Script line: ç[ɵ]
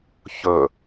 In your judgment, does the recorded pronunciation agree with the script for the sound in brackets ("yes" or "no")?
yes